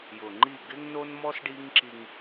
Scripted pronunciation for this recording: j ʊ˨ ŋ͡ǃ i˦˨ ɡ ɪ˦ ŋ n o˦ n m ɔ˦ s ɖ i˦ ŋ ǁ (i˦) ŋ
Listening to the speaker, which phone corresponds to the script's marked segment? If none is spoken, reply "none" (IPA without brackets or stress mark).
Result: i˦